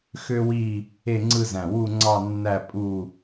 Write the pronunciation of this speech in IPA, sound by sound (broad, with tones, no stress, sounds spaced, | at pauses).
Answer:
x ø˥ w i˥˧ | e˥˧ ŋ͡ǀ ɯ˥˧ z æ̃˧˩ w u˥˧ ŋ͡ǀ ɑ˥˧ nː æ˥˧ pʼ u˥˧